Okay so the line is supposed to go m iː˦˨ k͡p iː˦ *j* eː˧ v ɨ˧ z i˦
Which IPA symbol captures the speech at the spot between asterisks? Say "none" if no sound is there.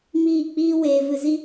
w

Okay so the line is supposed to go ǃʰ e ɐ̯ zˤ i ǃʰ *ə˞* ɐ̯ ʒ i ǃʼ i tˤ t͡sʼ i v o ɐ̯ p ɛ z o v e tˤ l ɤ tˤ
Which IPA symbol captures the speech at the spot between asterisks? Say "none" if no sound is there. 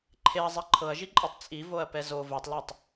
ɤ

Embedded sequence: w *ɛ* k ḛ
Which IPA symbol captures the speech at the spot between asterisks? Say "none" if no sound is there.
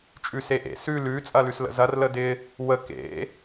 ə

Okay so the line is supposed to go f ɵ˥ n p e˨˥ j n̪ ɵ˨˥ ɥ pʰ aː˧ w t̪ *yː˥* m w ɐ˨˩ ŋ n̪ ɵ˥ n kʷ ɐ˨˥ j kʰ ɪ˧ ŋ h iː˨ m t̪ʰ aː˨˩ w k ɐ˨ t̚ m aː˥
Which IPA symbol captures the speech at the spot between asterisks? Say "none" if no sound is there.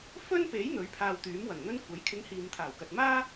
yː˨˥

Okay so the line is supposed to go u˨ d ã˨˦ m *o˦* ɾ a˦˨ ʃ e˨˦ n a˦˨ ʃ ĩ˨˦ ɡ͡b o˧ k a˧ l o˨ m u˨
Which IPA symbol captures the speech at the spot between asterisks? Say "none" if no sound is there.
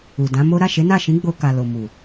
o˦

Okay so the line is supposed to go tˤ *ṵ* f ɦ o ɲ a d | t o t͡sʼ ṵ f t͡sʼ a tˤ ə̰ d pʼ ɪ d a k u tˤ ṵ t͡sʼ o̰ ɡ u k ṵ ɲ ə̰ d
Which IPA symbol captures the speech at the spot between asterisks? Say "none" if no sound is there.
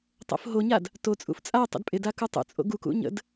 o̰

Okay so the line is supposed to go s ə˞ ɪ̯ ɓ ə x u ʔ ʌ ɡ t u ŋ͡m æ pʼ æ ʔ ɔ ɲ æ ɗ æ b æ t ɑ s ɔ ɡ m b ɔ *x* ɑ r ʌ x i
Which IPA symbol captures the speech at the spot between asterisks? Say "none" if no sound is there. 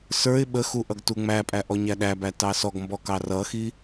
k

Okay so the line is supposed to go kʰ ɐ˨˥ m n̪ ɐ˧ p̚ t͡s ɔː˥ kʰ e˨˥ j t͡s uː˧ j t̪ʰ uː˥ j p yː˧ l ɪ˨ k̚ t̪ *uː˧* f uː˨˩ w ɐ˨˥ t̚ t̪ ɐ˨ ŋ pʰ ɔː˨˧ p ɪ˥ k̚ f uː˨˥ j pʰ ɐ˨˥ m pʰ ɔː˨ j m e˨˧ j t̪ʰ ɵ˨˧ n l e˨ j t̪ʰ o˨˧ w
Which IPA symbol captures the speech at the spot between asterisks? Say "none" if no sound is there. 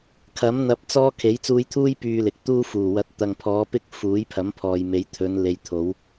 uː˥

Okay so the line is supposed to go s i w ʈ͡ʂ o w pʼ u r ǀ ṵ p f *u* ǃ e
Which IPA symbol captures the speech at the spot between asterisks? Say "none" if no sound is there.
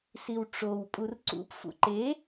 ṵ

